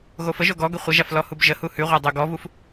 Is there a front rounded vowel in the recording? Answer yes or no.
no